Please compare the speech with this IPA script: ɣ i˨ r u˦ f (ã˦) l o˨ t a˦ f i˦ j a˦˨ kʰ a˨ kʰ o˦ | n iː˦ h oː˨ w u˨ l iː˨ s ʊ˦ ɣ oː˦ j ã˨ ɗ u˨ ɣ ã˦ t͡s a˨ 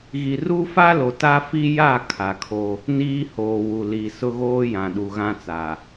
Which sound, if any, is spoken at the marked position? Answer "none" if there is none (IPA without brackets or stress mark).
a˦